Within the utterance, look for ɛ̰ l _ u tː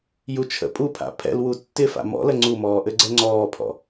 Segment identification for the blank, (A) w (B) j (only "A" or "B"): A